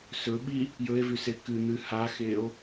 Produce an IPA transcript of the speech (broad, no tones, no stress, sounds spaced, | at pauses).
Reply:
s ɵ ɓ i | j ɵ e̯ v ʉ s e k ɨ n̪ ɨ h a x e o̯